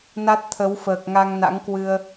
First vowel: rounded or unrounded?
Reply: unrounded